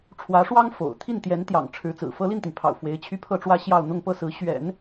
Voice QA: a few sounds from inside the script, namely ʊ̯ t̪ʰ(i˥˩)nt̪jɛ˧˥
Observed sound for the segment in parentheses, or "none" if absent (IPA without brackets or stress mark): i˥˩